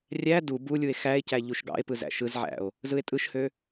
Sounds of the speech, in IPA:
rʲ æ d u b u lʲ u e̯ x æ e̯ c æ ʎ u ʃ ɡ ɑ̰ e̯ p ɯ z æ̰ ʃ ɯ z ʕ æ̰ o̯ | z ɯ e̯ tʼ ɯ ʃ h ø

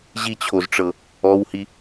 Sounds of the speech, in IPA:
ʑ i t͡ɕʰ o z ʈ͡ʂ ɤ | ɔ w h i

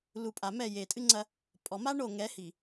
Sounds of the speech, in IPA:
l u˨ pʼ a˨ m ɛ˦˨ j e˨ tʼ ɨ˦ ŋ͡ǀ ɐ˦ | pʼ ɔ˨ m a˦ ɳ o˦˨ ŋ ɛ˨˦ h i˨

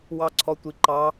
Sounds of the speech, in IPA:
w ɑ ǀʰ ɔ tʷ i ǃ ɑ

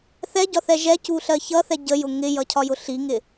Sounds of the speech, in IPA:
θ ɛ ɟ ɒ θ ɛ ʒ ɛ c u ɬ ɜ ç ʌ θ ɛ ɟ ə j ʊ ŋ ɪ j ʌ cʰ ɒ j ʊ ɬ i ŋ ɪ

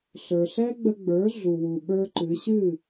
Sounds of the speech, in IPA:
ɬ ə˞˩ ɬ ɛ˥ ɡ͡b ə˧ ɡ͡b ə˞˩˥ ɮ u˩ w u˩ ɓ ə˞˥ ǃ ɨ˩˥ ɕ ɨ˥˩

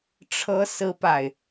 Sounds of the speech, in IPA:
ʈ͡ʂʰ ɤ˥ s ɹ̩˥ p a˨ ɪ̯

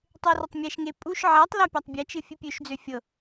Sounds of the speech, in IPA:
tˤ e r ə tˤ mʲ ɛ ʃ ŋ e pʼ u ʃ ʕ ɛ tˤ l a pʲ a tˤ bʲ ɛ t͡ʃ ɨ fʲ ɨ pʲ ø ʃ d͡z ø fʲ ɤ

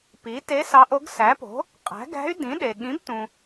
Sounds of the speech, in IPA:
p i˩˥ t e˧˥ s ɑ˧˥ ʔ o˧˥ ɡ s æ˩˥ p o̤˩˥ | qʼ æ̤˩˥ ɡ æ̤˧˥ y̯ d ĩ˩˥ ɗ e˩ ɠ ĩ˩˥ b t ũ˩

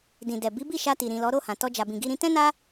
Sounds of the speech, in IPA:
d ĩ˨ d ɛ˨ b i˨˦ b i˦˨ ʃ a˧ t i˨ ɾ ĩ˨ l ɔ˨˦ ɾ o˦˨ h ã˨ t ɔ˧ d͡ʒ a˨ b ĩ˨ ɡ i˧ ɾ ĩ˧ t ɛ̃˦ n a˦

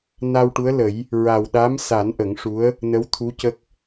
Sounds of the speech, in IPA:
n a˧ w ʈ u˧˥ ə̯ l ə˨˩˦ j | ɹ a˨˩ w ɗ a˧˥ m s a˨˩˦ n ʔ ə˨˩˦ ŋ ʂ u˧˥ ə̯ | n ə˧˥ w t̪ʰ u˧˥ c ə˦˥ k̚

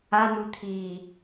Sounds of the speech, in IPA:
a n̪ u t̪ʰ iː

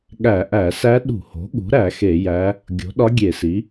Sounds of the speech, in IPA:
ɠ æ˧˩˧ ʔ æ˧˩˧ s æ˧˥ ɗ ṳ˧˩˧ h o̤˩˥ ɠ ṳ˩˥ ɾ æ˧˩˧ x e˧˩˧ j æ˧˥ | ɡʲ o̤˩˥ ɗ ɒ˧˥ ɡʲ e˧˩˧ s i˩˥

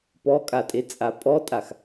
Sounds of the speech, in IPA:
p ɔ kʼ a tʼ e t͡sʼ a pʼ ɔ tʼ a x

